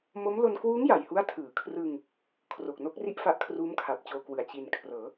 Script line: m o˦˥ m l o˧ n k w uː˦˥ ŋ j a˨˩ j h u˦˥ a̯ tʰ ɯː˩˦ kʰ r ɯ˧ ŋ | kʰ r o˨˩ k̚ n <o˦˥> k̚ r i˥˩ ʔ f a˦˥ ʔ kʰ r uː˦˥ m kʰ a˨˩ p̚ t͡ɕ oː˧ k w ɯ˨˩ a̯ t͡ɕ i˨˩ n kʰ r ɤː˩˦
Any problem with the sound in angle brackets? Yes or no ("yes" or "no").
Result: no